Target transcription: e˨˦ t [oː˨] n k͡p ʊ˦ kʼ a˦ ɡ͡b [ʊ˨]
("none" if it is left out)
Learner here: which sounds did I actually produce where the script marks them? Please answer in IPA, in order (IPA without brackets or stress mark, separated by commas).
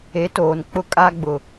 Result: oː˨, ʊ˨